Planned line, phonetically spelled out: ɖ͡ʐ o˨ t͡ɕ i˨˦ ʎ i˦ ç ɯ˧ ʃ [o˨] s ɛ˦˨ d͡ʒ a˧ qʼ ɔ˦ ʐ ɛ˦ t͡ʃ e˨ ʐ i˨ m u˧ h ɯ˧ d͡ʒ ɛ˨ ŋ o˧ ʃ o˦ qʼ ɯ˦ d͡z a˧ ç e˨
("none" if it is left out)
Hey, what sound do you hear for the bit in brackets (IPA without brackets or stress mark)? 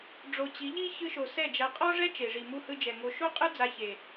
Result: o˨